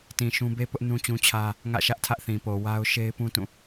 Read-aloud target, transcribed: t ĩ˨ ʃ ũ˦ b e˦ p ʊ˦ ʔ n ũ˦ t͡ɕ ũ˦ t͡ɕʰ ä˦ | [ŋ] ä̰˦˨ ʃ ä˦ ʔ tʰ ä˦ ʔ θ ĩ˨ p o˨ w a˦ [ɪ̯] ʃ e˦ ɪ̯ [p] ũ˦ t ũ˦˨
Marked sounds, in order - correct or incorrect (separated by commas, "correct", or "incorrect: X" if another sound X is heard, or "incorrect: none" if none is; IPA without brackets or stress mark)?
correct, incorrect: ʊ̯, correct